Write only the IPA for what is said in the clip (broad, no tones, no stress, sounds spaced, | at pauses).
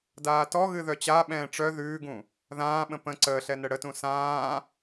d aː t ɔ ɣ ɨ ð œ t͡ɕ a ɓ ɛ̃ː ʈ͡ʂ œ ð ʉː ɡ ũ | ð ãː ɓ ə̃ p ə̃ ǀ əː ɬ ɛ n ə ɽ ə t ũ s ãː